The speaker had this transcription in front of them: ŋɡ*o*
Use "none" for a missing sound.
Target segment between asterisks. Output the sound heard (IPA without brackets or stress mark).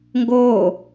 oː